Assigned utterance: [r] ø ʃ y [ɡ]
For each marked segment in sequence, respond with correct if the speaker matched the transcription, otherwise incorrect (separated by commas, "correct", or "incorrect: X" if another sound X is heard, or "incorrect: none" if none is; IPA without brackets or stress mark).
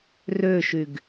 correct, correct